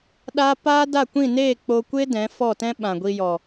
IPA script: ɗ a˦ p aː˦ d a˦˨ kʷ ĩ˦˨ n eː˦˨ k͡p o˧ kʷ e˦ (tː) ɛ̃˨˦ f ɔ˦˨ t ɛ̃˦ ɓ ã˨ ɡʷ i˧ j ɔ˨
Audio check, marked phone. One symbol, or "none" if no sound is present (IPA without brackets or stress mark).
d